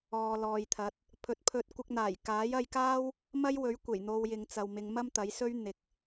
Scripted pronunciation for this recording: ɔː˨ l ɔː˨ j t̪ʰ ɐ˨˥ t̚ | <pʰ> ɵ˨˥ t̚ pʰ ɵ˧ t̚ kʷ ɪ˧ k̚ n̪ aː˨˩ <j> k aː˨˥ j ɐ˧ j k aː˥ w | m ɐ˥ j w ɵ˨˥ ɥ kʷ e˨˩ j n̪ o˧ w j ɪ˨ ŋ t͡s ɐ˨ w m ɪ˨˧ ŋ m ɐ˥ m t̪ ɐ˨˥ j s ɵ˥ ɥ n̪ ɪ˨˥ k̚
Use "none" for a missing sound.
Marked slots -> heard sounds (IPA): pʰ, j

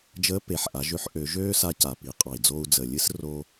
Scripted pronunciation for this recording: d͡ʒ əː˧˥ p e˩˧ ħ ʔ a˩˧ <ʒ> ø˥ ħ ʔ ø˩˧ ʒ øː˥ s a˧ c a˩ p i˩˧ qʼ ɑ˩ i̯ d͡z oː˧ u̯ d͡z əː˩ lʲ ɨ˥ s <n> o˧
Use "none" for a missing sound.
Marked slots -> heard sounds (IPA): ʒ, r

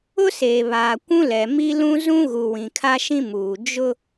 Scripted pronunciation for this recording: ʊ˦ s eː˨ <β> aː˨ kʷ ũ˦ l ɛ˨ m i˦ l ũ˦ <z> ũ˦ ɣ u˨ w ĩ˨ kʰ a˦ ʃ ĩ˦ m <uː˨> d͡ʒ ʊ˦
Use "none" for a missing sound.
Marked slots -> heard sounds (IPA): β, z, uː˨

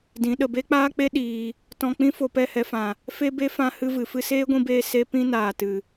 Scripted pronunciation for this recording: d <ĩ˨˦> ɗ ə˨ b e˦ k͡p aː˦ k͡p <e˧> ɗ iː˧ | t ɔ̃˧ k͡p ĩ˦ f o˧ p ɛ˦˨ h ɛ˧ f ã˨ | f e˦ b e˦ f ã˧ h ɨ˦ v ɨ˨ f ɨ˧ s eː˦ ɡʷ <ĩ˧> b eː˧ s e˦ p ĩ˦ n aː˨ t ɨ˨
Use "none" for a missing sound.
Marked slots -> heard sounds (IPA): ĩ˨˦, e˦, ĩ˧

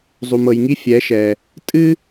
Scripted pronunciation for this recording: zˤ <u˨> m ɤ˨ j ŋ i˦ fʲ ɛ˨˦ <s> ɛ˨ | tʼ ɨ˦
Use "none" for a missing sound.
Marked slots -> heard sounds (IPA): u˨, ʃ

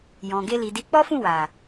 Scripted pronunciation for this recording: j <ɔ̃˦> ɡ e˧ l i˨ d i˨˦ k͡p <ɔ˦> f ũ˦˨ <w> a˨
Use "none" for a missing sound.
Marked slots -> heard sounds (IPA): ɔ̃˨, ɔ˦, w

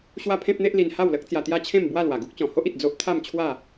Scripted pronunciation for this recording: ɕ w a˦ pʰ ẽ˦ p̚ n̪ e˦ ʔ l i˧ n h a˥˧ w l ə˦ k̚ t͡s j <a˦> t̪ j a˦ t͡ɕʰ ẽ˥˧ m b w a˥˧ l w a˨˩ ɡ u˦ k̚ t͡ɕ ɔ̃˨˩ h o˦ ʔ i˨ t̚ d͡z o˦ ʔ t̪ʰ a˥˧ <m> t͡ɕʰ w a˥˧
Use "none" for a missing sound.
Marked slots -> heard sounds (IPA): a˧, m

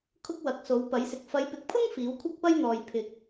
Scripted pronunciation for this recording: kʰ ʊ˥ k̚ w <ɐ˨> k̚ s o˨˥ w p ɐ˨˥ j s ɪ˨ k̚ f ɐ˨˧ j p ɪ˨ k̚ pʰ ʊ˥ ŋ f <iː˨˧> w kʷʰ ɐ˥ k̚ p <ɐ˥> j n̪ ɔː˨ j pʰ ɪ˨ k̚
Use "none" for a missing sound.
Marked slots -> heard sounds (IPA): ɐ˨˥, iː˨˥, ɐ˥

